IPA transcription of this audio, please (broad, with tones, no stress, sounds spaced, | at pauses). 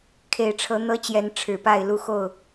kʰ e˨˩ ɪ̯ ʈ͡ʂʰ ɤ˨˦ n̪ ɤ˦ t͡ɕ j ɛ˨˦ n ʈ͡ʂʰ ɻ̩˨˩ p a˥˨ ɪ̯ l u˦ x o˥˨ ʊ̯